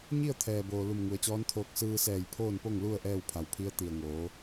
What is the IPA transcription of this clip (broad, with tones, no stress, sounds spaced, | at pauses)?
ɲ i˥˨ ə̯ t̪ʰ ɛː˩ b oː˩ l u˧˩ m ŋ u˩˧ ə̯ t͡ɕ ɔː˧˥ n t̪ʰ oː˧ k̚ s ɯː˧ s ɛː˧˩ j pʰ oː˥˨ n p o˥˨ ŋ l u˥˨ ə̯ ʔ ɛː˥˨ w pʰ a˩˧ w pʰ i˧˥ ə̯ t̪ i˩ ə̯ ŋ oː˩˧